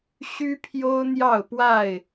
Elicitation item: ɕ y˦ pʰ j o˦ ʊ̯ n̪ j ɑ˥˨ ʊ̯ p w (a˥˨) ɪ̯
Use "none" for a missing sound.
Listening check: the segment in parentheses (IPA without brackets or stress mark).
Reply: a˥˨